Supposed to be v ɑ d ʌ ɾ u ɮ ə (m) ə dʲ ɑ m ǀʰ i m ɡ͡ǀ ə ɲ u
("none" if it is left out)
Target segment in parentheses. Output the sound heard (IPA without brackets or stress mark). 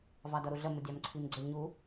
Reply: m